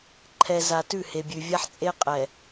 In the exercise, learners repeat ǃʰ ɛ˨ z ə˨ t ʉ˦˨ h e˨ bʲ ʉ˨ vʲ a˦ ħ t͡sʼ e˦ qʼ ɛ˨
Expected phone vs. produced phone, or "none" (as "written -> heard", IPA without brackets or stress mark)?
ə˨ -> a˨